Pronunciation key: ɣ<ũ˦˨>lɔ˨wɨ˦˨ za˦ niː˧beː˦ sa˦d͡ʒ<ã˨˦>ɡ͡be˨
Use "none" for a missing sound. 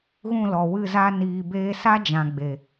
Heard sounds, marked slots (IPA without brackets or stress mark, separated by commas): ũ˦˨, ã˨